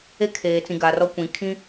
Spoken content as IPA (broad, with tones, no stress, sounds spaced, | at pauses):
e˦ kʰ eː˨ t͡s ĩ˨ ɡ a˨ r ɔ˦ kʷ ĩ˨ kʰ ĩ˦